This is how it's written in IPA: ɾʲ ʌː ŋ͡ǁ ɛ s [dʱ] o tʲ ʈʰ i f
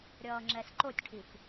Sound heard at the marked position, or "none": ǃ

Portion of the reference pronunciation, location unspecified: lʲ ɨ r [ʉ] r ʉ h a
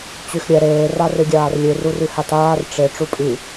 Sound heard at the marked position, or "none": u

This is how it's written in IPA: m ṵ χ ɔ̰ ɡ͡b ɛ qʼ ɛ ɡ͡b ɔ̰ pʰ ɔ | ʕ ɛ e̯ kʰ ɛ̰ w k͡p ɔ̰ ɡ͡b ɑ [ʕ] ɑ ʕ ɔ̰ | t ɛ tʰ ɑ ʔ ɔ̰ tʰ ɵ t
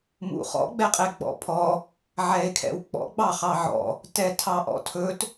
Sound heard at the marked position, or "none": χ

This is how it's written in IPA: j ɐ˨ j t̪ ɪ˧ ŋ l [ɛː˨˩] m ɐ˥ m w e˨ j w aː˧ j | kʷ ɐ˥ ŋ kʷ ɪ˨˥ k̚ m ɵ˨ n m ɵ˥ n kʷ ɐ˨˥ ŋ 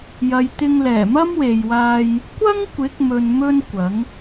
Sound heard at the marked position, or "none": ɛː˨˩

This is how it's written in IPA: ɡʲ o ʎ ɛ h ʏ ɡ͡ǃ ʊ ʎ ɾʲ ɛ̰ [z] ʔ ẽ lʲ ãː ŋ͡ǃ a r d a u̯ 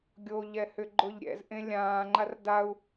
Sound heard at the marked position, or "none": z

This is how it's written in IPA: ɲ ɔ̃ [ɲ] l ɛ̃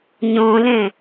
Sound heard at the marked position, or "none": none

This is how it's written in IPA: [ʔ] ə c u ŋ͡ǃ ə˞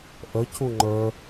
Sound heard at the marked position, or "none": ʔ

